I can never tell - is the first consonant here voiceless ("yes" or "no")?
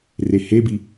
no